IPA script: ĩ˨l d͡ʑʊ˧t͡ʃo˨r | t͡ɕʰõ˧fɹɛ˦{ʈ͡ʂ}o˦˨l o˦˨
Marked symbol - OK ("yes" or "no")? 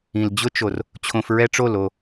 yes